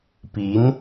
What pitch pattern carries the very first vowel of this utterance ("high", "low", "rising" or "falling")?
rising